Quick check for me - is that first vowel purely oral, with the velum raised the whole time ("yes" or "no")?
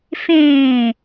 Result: no